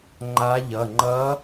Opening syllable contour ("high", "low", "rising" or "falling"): rising